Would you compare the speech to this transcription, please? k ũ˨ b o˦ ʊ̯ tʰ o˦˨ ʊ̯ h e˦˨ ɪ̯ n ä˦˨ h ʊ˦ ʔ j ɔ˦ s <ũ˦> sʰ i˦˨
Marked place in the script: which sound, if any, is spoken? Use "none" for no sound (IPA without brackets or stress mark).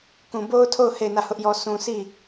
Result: ũ˦